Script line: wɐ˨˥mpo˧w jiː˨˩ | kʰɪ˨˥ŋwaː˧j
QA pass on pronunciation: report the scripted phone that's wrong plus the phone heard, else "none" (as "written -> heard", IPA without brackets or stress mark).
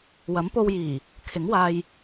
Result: none